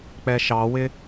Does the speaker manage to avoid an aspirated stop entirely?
yes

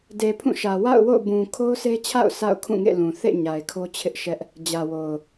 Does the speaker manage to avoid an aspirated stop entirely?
no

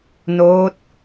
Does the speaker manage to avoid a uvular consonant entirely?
yes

